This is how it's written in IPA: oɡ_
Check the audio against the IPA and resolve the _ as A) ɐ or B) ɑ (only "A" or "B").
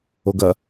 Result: A